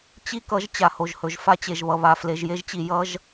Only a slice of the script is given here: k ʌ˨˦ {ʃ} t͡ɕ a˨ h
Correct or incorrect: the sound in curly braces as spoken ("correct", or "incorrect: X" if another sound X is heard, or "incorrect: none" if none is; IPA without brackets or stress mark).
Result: incorrect: ʒ